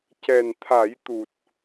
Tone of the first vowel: low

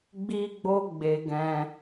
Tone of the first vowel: high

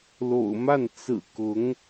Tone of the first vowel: low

